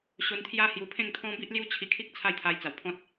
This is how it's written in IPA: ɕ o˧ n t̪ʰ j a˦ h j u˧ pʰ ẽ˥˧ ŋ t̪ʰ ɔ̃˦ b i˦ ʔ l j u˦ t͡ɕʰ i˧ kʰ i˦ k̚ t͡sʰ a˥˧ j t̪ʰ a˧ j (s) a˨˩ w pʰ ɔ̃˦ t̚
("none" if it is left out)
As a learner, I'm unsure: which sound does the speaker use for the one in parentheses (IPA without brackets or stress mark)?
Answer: t͡s